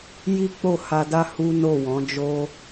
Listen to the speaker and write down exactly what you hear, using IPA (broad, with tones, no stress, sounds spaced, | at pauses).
j i˦ k͡p o˦˨ h a˧ d a˦ h u˦ n o˦˨ w ɔ̃˨˦ d͡ʒ o˦